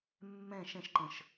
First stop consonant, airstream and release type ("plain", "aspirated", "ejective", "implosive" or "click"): click